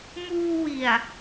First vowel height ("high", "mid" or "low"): high